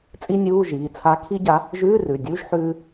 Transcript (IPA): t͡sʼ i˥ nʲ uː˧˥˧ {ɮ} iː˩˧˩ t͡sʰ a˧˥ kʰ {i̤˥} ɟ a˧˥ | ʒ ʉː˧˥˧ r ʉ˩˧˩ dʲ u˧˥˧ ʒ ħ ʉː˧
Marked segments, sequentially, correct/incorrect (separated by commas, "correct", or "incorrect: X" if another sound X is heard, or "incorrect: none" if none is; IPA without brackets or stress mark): incorrect: ʒ, incorrect: i˥